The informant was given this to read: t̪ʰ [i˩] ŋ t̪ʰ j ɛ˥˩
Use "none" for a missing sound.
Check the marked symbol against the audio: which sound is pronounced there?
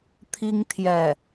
i˥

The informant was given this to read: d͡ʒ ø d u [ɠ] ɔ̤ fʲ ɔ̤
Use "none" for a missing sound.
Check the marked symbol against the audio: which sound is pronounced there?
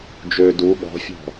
ɠ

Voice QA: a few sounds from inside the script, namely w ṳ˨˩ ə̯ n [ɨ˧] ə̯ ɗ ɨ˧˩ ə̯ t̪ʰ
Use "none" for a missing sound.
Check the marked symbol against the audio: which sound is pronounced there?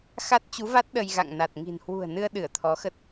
ɨ˧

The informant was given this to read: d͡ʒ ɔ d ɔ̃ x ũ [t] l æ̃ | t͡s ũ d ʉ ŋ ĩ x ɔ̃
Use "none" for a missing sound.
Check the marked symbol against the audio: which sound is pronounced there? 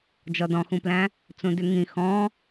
p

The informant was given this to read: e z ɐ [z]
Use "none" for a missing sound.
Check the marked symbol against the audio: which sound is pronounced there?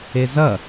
none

